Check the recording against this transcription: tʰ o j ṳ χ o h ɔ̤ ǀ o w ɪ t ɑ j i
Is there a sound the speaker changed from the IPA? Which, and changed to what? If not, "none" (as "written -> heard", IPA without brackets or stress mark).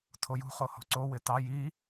none